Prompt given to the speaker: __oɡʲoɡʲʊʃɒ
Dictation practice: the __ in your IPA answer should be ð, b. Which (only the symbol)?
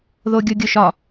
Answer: ð